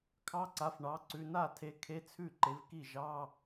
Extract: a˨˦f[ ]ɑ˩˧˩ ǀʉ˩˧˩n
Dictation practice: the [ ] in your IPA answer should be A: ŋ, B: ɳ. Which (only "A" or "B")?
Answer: B